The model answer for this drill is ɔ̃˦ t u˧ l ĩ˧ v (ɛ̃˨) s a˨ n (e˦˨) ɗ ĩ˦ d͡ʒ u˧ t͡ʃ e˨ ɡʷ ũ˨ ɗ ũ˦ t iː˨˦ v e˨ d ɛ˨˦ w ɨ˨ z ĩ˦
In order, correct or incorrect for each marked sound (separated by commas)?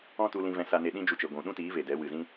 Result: correct, incorrect